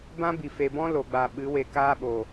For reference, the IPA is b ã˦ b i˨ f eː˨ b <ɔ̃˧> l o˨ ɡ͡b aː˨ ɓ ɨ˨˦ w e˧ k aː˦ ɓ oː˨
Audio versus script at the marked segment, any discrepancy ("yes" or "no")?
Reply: yes